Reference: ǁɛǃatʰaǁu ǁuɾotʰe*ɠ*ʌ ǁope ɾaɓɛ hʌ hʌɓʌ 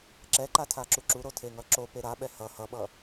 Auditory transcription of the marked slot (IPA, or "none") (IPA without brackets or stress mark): ŋ